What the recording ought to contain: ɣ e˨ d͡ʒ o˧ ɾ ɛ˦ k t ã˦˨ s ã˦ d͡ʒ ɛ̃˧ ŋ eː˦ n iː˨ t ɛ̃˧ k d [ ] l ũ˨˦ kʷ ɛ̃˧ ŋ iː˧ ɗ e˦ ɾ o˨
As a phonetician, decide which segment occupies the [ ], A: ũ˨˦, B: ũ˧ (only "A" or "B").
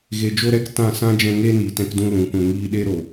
B